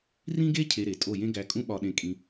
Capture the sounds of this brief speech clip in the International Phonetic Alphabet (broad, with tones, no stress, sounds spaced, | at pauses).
r ĩ˦ ɡ e˦ cʰ e˧ ɾ e˨ tʼ o˦˨ j ẽ˦ ɡ æ˧ kʼ ũ˦ ɓ ɒ˧ ɗ ẽ˧ kʼ ĩ˧